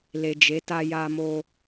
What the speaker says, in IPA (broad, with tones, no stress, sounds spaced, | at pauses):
l e˨ d͡ʒ e˨˦ t a˧ j a˧ m o˧